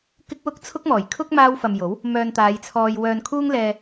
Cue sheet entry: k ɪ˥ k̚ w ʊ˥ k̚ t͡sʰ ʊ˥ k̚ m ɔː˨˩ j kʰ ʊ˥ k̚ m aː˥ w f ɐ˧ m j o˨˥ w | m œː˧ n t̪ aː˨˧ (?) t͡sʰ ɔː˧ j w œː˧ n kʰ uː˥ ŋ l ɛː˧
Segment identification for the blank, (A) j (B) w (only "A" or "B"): A